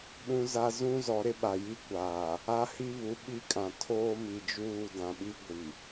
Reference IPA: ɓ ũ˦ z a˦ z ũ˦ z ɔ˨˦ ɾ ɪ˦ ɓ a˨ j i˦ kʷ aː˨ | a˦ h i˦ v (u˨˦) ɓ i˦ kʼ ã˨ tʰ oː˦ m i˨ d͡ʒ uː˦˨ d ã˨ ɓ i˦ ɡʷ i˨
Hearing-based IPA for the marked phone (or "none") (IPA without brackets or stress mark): u˨˦